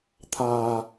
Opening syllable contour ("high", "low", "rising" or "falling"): low